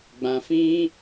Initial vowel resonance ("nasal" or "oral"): nasal